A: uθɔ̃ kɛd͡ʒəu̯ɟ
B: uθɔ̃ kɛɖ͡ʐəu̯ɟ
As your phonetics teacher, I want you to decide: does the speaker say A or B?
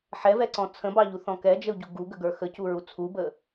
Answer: A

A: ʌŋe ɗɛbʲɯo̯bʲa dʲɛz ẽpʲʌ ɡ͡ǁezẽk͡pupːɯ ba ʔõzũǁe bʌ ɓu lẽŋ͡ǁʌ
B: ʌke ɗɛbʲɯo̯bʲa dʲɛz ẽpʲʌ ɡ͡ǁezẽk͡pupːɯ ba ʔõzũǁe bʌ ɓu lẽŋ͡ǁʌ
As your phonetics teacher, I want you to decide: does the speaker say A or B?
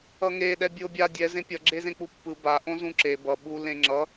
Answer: A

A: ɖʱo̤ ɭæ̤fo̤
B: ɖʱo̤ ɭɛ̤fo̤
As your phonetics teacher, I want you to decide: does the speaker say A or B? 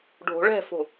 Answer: B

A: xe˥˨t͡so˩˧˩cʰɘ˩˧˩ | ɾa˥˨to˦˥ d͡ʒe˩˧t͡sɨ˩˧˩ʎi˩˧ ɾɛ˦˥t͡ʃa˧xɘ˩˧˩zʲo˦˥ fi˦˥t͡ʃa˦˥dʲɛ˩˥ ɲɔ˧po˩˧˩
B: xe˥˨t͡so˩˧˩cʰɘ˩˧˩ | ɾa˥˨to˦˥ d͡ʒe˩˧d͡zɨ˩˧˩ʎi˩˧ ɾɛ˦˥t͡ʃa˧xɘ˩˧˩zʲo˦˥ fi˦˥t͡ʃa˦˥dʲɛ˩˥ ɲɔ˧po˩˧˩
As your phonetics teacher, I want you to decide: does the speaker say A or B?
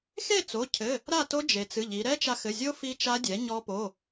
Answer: A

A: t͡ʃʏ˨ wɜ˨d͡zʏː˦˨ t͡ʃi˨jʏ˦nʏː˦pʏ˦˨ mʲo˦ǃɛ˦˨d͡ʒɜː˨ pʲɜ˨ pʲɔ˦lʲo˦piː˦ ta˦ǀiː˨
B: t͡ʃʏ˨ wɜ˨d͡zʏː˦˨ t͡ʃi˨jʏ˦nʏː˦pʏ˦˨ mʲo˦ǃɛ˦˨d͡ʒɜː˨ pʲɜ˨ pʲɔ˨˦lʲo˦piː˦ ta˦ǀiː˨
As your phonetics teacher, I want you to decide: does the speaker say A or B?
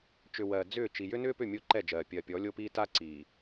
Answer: B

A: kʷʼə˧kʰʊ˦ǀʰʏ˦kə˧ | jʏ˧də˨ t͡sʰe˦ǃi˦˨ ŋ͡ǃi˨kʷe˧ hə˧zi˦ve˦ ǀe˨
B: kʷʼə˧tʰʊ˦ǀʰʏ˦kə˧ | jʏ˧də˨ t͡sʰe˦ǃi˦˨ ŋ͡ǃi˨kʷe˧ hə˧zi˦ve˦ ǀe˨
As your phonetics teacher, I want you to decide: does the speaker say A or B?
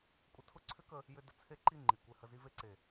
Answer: B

